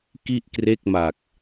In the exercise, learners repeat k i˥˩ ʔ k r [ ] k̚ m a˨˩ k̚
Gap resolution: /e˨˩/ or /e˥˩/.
e˥˩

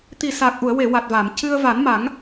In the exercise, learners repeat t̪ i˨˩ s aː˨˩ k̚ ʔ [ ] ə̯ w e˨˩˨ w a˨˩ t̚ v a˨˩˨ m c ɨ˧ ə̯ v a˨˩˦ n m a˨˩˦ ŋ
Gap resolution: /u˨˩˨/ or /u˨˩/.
u˨˩˨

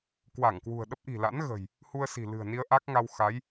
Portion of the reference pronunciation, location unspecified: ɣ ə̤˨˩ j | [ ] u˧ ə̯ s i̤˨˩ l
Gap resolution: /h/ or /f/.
h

